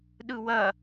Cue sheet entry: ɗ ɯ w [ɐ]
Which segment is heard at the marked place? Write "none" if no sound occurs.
ɐ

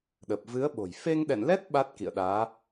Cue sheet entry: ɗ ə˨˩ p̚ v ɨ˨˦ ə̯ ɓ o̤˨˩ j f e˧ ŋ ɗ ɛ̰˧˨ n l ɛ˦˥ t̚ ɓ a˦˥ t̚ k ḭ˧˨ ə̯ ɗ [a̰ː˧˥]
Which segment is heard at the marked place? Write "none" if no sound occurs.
aː˨˦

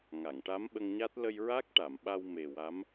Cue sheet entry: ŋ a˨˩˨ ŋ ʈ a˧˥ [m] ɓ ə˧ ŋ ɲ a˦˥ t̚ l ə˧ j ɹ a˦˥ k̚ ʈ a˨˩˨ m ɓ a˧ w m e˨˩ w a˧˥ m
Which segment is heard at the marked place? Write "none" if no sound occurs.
m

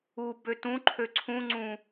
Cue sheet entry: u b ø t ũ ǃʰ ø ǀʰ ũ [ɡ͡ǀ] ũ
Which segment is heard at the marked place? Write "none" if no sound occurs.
ŋ͡ǀ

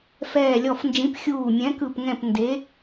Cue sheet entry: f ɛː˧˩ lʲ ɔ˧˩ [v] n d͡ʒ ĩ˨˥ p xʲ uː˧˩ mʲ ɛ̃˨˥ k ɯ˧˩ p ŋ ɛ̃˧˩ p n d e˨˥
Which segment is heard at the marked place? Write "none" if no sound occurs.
f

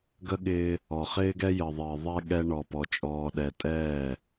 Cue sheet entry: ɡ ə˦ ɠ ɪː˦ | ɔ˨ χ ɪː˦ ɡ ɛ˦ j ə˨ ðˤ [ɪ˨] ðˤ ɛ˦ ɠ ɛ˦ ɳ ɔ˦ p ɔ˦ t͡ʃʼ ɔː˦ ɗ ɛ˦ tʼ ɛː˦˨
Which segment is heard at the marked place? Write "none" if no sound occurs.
ɪː˨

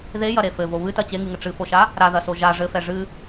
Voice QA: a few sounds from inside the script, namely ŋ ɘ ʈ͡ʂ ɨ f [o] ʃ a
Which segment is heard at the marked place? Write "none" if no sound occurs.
o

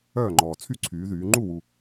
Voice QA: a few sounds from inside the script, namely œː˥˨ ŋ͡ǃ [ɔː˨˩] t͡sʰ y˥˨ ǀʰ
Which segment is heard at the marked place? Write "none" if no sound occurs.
ɔː˨˩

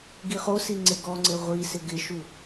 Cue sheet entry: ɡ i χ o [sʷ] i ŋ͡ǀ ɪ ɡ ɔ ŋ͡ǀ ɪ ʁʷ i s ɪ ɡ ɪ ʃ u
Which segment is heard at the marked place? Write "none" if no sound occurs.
s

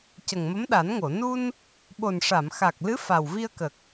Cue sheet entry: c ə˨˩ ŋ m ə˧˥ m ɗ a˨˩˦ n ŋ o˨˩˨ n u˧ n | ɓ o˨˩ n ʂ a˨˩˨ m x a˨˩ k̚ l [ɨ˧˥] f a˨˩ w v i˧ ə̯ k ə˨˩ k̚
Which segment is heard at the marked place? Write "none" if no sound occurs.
ɨ˧˥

